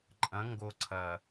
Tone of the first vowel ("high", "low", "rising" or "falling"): rising